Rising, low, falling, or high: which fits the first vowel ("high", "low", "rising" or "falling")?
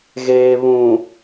low